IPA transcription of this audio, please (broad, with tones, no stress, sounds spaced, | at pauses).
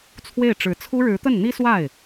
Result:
t͡sʰ w e˥˩ ɪ̯ ʈ͡ʂ ɻ̩˧˥ t͡sʰ u˥ ɻ ɻ̩˧˥ t̪ ə˥˩ n n̪ i˥ s w a˥˩ ɪ̯